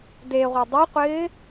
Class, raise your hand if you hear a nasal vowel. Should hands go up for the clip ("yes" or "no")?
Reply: no